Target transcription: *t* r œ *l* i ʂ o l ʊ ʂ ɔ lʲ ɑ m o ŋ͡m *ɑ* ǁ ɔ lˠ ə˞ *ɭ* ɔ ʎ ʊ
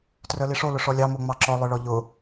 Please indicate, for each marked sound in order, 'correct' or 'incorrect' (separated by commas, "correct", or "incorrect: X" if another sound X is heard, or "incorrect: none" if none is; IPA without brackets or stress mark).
correct, correct, correct, correct